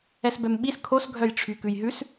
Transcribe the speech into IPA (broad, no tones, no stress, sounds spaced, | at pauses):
ɛ s b ɛ m ɓ i s kʰ o s ɡʱ œ j ʈ͡ʂʰ y k ʉ j ɦ ʉ s